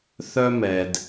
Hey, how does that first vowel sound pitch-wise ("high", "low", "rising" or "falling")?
high